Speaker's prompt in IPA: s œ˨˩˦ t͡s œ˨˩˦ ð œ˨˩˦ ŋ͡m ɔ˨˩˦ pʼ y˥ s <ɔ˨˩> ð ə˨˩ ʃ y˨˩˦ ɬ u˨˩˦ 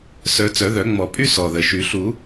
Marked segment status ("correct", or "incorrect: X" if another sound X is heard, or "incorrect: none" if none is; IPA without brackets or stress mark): correct